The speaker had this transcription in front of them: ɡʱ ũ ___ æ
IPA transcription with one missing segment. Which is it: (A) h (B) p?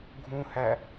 A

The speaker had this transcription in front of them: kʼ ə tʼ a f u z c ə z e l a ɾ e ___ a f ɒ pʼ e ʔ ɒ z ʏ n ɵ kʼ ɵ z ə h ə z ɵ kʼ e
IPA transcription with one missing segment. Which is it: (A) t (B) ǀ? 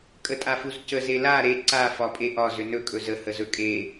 B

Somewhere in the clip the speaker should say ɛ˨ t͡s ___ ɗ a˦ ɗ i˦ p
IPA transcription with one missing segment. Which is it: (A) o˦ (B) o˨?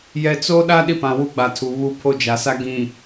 A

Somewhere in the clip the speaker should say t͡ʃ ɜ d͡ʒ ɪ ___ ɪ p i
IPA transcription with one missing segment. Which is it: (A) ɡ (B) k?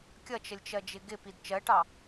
A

